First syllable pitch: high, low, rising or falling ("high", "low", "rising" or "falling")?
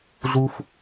high